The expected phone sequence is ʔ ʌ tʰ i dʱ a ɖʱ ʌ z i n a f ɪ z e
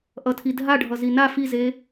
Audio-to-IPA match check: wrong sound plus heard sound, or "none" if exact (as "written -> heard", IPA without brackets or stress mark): ɪ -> i